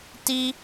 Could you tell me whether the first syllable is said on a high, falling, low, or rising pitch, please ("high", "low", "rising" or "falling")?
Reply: high